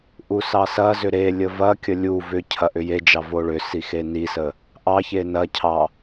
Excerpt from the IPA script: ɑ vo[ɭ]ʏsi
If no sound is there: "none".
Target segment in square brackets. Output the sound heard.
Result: ɭ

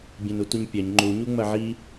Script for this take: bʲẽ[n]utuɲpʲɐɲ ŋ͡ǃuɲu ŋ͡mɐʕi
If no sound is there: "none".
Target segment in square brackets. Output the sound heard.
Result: n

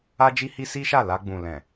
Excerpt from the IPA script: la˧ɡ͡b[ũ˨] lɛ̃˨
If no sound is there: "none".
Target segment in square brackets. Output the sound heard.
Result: ũ˨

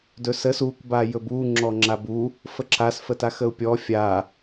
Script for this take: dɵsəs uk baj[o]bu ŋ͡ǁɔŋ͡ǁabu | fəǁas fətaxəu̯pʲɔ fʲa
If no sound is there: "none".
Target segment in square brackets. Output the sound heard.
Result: ɵ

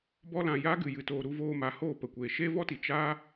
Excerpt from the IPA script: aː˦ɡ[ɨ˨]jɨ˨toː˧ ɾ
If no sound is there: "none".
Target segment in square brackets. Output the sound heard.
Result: ɨ˨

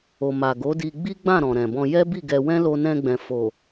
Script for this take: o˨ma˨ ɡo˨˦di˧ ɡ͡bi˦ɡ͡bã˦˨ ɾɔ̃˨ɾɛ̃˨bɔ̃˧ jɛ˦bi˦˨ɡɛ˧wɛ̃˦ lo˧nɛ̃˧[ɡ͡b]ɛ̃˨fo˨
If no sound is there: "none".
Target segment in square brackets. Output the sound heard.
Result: ɡ͡b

